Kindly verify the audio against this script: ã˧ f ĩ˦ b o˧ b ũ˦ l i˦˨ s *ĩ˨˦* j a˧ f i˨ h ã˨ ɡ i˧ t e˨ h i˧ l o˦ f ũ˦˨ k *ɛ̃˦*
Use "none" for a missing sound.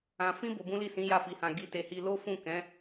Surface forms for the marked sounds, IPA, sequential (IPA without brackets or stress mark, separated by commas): ĩ˨˦, ɛ̃˨˦